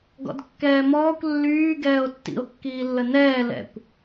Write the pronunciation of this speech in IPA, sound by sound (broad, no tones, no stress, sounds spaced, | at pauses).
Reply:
ɡ ɔ̰ d kː ɛː m ɔː kʷ lː yː ɡ ɛː o̯ tː ḭ o̯ kː iː lː ə n ɛː l ɛ̰ kʷ